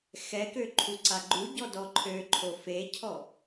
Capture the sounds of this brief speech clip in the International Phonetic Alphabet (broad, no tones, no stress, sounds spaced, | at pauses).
x ɛ k ø ǃʰ u ǀ a ɡ͡ǃ u ɟ ɔ d ɔ ǃʰ ø ǃʰ o f e cʰ ɔ